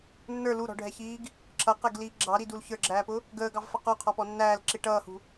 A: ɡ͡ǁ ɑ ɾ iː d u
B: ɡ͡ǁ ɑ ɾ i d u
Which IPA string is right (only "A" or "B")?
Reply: B